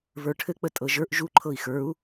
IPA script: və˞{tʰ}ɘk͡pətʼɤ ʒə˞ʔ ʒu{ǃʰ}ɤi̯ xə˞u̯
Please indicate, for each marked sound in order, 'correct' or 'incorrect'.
incorrect: ʈʰ, correct

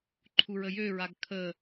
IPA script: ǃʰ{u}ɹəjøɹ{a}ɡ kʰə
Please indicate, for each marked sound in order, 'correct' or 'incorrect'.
correct, correct

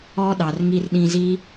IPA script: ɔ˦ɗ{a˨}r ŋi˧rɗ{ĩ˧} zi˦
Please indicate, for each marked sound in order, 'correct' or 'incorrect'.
incorrect: ɑ˨, correct

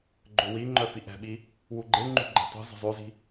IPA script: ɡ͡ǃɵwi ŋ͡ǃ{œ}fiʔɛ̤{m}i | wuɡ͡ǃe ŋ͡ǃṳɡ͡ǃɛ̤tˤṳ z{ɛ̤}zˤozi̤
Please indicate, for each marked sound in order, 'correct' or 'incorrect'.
correct, incorrect: ɓ, incorrect: ə̤

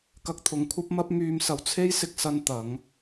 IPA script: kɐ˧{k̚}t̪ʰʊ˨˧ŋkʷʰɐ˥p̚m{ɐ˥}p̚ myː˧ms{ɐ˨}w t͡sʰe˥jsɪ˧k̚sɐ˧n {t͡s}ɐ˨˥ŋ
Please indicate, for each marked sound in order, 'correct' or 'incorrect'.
correct, correct, correct, incorrect: t̪

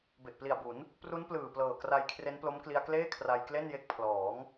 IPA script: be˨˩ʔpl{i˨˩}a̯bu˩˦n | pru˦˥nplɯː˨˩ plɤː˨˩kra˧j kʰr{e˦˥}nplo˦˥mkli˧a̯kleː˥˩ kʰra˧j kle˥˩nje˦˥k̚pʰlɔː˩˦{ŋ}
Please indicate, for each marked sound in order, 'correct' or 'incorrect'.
correct, correct, correct

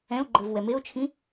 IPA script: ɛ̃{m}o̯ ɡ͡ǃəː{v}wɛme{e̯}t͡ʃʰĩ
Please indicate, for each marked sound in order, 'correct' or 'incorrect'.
incorrect: none, correct, incorrect: o̯

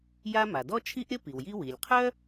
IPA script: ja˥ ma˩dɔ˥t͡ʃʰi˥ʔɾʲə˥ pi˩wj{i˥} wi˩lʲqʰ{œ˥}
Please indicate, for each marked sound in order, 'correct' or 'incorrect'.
correct, correct

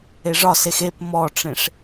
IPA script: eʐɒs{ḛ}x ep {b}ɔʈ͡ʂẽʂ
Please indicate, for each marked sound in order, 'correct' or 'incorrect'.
incorrect: e, incorrect: m

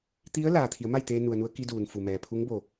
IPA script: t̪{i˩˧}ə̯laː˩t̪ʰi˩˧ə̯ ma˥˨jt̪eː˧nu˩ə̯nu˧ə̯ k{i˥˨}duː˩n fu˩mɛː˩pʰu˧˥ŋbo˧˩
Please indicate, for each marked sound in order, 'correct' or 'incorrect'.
incorrect: i˧˥, incorrect: i˧

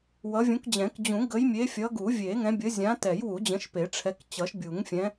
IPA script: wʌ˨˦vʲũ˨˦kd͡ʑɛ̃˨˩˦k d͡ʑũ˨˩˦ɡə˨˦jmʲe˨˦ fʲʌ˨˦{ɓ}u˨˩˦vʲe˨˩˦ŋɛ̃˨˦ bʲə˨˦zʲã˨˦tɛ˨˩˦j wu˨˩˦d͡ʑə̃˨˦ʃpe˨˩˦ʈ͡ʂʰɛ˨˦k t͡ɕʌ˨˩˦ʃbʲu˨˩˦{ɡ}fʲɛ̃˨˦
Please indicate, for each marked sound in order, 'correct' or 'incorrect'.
incorrect: ɡ, incorrect: ŋ

